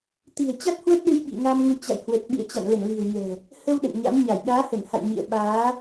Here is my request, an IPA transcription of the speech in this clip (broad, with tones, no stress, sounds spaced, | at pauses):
t̪ i̤˨˩ ə̯ t͡ɕ a˦˥ t̚ h w ə˦˥ t̚ ɗ ɨ˧ j ɓ ḭ˧˨ ŋ a˧ m ŋ u˨˦ t͡ɕ a̰˧˨ j h w ə˨˩ t̚ ɓ ḭ˧˨ ə̯ t͡ɕ a̰˧˨ n l ə˧˩ n l i̤˨˩ ə̯ ɲ ɛ̤˨˩ | h ə˧ w ɗ ə̰˧˨ n ɲ a̰˧˥ m ɲ a˧˩ j ɗ aː˨˦ h ə˧˩ n h a̰˧˨ j ɲ ḭ˧˨ ə̯ ɓ aː˨˦